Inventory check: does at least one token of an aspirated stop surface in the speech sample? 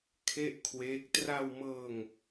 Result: yes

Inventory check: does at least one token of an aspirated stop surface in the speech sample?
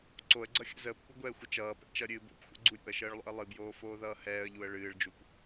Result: no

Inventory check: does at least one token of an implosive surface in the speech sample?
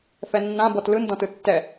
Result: no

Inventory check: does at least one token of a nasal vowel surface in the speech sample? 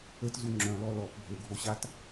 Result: yes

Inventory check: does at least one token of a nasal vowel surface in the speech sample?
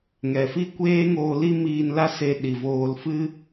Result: no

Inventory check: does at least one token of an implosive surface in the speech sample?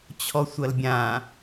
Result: no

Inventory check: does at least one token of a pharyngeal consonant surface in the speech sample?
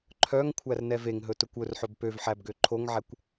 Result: yes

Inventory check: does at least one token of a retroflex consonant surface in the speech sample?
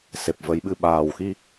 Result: no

